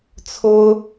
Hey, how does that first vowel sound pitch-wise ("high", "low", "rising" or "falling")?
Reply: high